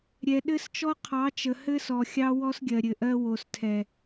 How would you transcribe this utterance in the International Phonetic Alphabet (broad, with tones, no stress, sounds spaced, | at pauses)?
ɾʲ ɛ˨ ɗ ɘ˦ s t͡ʃ ɔ˦ qʰ ɑ˨˦ t͡ʃ ə˨ h ɘ˦ s ɔ˨ xʲ ɑ˦ w ɔ˦ s ɡʲ ɜ˨ ɾʲ ɘ˨ ʔ ɜ˦ w o˨ s tʰ ɛ˨